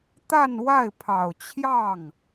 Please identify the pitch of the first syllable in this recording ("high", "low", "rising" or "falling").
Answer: falling